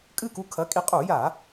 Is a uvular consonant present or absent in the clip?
present